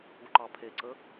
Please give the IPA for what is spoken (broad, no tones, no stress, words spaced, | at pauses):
uǃɑpʰeǀə